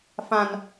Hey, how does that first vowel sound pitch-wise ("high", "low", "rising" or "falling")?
high